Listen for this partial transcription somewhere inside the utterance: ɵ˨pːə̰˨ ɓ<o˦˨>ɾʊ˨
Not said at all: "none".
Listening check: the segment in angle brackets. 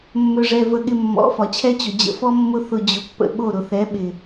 o˦˨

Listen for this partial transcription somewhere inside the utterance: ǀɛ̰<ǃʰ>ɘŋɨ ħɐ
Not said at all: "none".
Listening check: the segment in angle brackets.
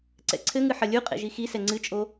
ǀʰ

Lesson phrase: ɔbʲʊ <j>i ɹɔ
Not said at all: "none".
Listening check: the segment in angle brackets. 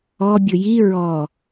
j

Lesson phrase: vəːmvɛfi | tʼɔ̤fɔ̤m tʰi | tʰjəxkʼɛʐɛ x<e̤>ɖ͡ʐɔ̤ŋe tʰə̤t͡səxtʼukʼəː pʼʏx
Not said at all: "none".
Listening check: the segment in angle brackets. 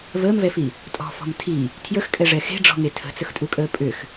e̤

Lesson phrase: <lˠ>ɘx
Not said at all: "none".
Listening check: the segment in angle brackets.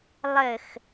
lˠ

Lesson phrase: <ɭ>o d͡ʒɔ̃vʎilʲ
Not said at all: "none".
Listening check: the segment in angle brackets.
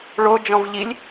ɭ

